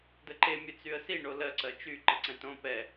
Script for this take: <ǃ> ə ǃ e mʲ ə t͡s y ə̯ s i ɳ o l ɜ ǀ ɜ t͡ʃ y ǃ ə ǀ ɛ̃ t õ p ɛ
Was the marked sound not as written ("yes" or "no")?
yes